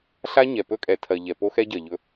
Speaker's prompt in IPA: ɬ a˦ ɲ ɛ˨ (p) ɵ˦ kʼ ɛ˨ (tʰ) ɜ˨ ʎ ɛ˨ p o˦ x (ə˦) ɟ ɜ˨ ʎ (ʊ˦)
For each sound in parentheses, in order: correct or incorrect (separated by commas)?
correct, correct, incorrect, incorrect